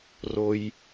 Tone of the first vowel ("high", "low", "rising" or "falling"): low